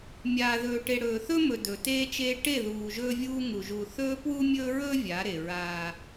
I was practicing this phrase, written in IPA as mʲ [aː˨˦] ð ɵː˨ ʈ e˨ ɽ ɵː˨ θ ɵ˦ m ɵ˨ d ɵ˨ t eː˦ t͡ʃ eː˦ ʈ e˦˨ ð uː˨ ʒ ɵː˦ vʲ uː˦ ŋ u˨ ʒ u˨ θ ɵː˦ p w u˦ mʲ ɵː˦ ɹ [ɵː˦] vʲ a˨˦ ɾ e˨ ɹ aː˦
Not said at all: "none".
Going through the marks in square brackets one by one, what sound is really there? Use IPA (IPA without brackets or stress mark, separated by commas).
aː˨, ɵː˦